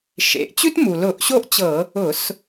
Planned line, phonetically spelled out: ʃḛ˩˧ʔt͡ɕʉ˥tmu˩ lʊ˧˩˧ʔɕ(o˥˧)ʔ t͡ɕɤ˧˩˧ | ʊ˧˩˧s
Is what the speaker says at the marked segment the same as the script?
yes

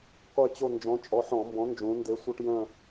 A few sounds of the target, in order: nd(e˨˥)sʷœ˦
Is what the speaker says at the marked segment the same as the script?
yes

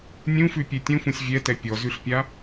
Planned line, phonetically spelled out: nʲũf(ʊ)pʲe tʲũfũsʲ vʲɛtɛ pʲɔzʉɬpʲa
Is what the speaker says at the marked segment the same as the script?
no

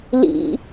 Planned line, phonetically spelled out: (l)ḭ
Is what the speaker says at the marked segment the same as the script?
yes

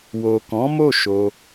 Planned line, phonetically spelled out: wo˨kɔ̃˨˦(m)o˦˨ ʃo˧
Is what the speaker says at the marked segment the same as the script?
yes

